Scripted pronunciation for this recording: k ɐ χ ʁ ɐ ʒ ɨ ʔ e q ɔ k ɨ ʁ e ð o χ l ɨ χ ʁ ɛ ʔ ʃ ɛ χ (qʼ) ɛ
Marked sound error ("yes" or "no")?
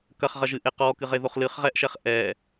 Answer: yes